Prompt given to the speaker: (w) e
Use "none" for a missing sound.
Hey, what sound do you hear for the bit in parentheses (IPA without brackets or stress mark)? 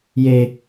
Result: j